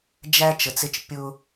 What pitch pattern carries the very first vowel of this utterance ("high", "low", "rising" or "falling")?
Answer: high